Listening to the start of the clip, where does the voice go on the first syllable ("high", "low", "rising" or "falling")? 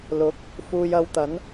rising